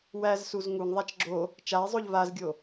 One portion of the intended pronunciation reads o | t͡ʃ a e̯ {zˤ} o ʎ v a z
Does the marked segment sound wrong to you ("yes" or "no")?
no